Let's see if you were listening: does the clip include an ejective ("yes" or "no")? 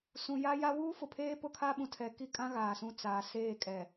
yes